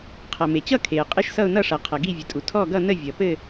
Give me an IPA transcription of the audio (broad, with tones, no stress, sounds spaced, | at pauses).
qʰ ʌ˩ m e˩ t͡ɕ ʌ˥˧ kʰ e˩ ə̯ qʼ ɘ˥˧ ʃ s ʌ˥˧ ʊ̯ n ʌ˥˧ ʂ ʌ˩ qʰ ʌ˩ ɡ i˥˧ vʲ ə˩ tʼ u˩ tʰ ɔ˥˧ ɡ ʌ˥˧ n ə˥˧ vʲ ʌ˩ p ɘ˥˧